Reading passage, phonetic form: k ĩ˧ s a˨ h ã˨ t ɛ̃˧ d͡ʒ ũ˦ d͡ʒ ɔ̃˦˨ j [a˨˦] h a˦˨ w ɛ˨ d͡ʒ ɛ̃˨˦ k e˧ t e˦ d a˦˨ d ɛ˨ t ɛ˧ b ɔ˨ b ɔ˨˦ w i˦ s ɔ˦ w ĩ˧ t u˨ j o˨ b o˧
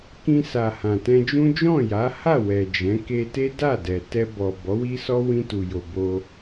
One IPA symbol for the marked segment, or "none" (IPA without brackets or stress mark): a˨˦